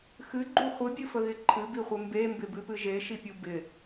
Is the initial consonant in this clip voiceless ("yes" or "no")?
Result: yes